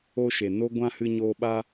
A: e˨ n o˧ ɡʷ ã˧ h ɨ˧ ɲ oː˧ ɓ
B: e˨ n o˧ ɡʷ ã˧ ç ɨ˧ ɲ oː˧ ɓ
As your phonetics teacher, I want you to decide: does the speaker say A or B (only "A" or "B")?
A